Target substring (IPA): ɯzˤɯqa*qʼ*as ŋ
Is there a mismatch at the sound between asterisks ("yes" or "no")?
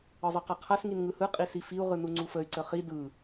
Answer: yes